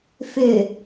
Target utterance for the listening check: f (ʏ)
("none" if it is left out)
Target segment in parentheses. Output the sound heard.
ʏ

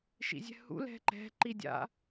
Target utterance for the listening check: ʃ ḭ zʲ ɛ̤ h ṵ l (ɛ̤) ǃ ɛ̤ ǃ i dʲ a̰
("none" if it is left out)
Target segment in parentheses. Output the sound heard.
ɛ̤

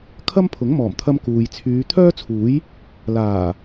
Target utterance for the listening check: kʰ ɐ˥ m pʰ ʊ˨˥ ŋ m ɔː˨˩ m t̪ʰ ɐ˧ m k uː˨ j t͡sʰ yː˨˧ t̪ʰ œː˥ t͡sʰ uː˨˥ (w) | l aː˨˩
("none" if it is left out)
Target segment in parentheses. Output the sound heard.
j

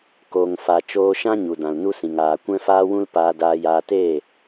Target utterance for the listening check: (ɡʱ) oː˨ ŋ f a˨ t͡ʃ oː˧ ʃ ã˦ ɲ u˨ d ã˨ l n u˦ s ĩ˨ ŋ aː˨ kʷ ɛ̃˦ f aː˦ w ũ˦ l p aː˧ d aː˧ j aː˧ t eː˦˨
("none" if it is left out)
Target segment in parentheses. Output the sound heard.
k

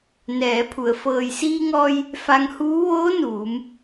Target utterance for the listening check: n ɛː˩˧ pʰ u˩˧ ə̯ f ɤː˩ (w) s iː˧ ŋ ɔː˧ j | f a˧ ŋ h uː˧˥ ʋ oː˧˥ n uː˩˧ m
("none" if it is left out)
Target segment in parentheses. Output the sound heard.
j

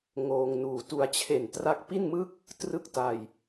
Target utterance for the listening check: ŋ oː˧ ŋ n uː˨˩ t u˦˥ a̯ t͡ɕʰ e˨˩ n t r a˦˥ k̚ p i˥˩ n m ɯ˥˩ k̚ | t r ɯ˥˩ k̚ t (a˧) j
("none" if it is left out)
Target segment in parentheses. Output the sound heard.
a˧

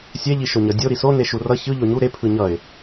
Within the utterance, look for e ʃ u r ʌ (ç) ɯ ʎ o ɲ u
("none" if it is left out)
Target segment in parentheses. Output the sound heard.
ç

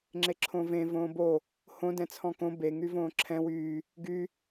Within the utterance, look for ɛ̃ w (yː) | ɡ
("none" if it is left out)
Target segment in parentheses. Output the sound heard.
yː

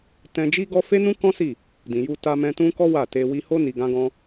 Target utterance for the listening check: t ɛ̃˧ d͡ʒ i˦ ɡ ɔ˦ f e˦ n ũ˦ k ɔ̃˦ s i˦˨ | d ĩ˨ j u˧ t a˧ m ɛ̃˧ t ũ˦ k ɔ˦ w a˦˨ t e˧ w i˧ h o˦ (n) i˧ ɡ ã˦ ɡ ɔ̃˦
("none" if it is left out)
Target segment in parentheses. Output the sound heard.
n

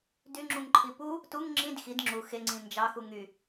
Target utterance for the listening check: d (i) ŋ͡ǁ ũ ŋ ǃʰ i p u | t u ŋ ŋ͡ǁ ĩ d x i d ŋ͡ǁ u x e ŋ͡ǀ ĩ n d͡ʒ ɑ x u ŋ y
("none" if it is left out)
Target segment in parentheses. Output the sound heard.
y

